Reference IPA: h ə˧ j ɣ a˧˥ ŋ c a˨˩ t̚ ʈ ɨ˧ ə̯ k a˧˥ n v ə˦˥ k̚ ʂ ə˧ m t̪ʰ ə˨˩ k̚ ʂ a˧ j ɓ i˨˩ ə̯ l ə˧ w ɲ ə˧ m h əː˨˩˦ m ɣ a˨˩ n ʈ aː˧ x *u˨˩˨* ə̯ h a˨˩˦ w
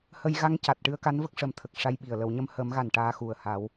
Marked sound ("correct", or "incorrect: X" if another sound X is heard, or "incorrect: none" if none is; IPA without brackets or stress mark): incorrect: u˨˩